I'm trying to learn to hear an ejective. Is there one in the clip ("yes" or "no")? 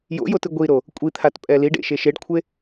yes